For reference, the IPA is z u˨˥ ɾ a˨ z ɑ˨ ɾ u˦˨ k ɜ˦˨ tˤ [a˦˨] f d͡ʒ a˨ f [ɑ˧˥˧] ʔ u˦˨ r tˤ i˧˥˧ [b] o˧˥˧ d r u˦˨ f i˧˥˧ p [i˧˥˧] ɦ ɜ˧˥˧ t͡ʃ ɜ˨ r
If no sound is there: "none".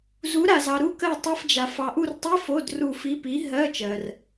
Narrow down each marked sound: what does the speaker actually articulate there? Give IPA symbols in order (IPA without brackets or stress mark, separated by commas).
a˧˥˧, ɑ˨, f, i˨˥